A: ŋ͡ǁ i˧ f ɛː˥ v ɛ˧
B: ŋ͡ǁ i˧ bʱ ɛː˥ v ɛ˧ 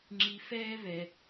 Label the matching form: A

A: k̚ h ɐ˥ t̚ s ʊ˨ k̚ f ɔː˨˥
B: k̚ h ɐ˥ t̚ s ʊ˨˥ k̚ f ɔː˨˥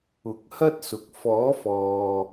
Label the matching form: A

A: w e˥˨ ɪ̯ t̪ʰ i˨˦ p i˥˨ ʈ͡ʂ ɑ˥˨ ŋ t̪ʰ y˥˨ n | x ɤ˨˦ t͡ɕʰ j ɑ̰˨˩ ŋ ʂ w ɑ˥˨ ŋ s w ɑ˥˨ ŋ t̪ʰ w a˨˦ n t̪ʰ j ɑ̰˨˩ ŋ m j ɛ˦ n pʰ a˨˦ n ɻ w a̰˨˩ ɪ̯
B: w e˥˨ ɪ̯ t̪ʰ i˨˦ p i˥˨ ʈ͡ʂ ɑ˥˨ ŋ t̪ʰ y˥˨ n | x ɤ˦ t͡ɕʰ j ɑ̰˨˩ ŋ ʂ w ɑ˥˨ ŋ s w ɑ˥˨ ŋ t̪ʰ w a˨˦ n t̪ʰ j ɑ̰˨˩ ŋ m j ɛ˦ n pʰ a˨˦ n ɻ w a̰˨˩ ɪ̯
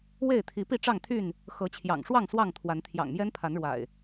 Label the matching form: A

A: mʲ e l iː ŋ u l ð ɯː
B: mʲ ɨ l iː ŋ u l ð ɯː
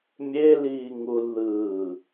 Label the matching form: A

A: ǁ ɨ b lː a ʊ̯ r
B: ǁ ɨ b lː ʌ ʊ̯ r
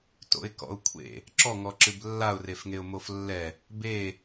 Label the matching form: A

